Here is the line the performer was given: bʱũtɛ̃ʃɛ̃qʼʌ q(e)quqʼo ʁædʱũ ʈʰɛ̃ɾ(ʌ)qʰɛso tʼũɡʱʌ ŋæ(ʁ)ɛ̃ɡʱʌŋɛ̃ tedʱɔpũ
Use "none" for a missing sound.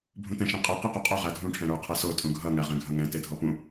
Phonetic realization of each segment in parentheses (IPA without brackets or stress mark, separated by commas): i, ə˞, ʁ